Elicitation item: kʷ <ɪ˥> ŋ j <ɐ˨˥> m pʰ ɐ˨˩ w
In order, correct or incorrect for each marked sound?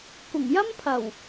incorrect: ɪ˨˩, incorrect: ɐ˥

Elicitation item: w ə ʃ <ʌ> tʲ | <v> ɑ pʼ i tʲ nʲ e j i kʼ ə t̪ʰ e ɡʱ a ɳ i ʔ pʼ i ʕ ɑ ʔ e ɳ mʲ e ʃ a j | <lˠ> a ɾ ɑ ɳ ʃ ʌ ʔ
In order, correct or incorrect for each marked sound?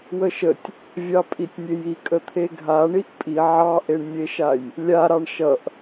incorrect: ə, incorrect: vʲ, incorrect: lʲ

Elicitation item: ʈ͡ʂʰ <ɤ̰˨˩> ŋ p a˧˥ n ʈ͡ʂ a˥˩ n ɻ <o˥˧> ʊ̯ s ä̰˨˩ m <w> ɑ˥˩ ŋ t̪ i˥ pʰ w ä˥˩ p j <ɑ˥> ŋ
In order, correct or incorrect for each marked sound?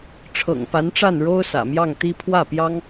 correct, incorrect: o˥, incorrect: j, correct

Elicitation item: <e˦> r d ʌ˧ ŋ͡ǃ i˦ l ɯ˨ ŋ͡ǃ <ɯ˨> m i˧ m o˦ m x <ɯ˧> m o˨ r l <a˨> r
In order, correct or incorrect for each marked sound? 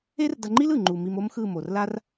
correct, incorrect: u˨, incorrect: ɯ˦˨, incorrect: a˦

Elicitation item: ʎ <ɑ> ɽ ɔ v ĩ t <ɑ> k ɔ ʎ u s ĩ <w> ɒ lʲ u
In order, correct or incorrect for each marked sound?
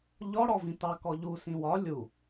incorrect: ɔ, correct, correct

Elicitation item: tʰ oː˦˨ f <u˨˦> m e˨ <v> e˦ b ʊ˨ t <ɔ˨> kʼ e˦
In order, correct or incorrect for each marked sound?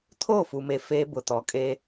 incorrect: u˨, incorrect: f, correct

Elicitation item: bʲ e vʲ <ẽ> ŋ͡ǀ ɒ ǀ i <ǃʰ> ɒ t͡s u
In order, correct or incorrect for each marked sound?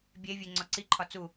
incorrect: e, correct

